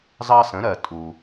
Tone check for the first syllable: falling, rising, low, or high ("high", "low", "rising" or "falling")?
high